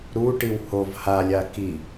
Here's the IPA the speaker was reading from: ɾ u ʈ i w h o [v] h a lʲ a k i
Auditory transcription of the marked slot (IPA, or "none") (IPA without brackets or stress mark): v